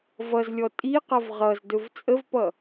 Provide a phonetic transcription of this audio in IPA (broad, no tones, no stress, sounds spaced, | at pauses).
v ʌ z lʲ ɔ tʼ i q ʌ v ʁ ʌ z d ɵ v t͡sʼ ə v p ʌ